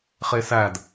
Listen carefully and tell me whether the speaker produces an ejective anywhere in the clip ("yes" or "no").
no